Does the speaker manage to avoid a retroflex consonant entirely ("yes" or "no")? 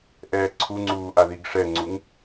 no